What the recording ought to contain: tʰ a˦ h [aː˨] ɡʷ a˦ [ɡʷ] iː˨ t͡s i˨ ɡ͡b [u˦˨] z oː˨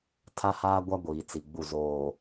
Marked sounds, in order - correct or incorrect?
incorrect: aː˦, correct, correct

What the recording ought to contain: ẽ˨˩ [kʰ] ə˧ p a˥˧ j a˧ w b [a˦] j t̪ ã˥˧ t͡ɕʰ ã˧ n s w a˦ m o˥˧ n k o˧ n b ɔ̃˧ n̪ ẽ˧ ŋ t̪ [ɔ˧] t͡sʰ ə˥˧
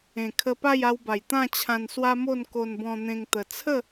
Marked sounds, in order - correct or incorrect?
correct, incorrect: a˨˩, incorrect: ə˧

